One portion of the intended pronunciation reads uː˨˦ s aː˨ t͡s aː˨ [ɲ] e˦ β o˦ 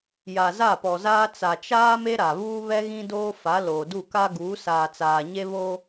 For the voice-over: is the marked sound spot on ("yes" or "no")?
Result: yes